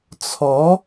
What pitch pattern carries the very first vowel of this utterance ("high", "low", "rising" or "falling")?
rising